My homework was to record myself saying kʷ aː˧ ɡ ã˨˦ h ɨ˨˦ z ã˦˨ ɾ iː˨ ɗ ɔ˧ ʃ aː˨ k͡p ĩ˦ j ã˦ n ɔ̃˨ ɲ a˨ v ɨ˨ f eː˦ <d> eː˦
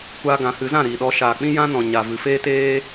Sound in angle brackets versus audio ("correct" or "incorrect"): incorrect